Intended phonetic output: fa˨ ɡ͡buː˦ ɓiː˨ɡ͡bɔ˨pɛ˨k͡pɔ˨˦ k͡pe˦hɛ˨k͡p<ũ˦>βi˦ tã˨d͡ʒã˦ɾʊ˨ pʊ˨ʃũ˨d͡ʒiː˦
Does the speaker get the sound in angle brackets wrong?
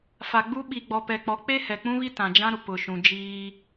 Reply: no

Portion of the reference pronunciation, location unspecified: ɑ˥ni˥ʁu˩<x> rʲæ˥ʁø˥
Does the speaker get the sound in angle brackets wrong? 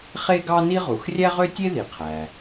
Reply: no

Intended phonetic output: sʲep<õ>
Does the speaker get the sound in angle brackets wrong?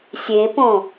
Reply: no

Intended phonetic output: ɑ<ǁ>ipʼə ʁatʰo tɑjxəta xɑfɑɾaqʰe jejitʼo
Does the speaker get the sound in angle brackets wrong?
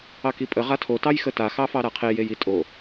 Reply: yes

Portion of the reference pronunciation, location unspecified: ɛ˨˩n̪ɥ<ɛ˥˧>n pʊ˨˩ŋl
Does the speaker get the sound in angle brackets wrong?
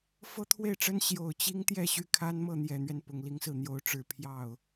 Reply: yes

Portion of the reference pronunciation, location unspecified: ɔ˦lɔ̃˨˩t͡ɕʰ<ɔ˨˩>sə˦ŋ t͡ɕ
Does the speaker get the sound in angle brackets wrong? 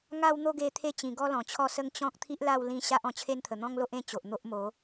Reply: yes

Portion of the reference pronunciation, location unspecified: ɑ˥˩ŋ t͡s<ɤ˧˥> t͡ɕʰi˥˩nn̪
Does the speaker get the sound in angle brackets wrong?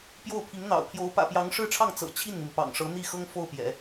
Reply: yes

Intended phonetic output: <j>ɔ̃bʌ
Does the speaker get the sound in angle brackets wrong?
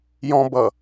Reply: no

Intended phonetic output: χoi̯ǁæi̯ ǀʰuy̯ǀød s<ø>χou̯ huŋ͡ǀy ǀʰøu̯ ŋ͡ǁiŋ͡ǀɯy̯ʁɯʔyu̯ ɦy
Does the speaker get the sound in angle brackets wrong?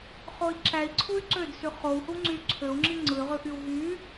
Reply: yes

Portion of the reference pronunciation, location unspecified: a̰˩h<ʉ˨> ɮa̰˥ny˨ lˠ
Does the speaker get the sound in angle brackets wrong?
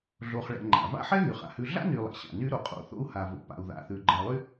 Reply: no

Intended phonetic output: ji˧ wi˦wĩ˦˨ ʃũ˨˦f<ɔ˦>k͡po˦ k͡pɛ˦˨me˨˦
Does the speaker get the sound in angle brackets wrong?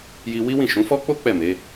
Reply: no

